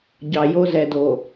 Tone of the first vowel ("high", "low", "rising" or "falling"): low